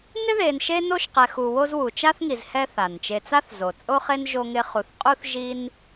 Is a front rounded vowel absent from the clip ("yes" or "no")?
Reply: yes